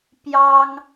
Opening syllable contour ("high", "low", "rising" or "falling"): high